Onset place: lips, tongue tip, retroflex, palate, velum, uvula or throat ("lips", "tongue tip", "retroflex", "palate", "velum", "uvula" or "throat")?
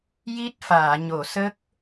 palate